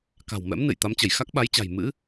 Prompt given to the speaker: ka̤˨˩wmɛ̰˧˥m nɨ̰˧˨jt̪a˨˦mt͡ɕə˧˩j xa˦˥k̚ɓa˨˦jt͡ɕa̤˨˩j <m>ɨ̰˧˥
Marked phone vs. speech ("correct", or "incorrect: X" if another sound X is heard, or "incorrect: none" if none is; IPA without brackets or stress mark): correct